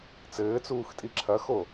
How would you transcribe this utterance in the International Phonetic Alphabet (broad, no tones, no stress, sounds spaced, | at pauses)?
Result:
t͡s ɘː t͡s uː x tʼ i ǁʰ ɐ x o